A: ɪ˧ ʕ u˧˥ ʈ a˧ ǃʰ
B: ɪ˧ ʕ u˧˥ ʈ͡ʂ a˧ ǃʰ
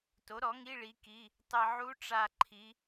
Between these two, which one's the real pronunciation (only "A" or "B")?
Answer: B